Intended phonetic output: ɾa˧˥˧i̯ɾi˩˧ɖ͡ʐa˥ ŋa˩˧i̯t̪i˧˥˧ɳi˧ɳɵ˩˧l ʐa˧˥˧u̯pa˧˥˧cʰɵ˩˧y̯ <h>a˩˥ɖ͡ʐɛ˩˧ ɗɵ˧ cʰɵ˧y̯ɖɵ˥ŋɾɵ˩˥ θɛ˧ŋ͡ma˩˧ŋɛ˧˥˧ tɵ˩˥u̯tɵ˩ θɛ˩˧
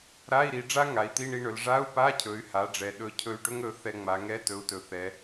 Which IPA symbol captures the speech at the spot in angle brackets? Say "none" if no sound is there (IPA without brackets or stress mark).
h